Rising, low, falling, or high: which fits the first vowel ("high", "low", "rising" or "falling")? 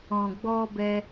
low